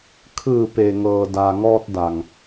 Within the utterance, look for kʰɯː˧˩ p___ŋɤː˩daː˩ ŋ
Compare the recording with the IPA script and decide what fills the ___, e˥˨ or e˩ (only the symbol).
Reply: e˩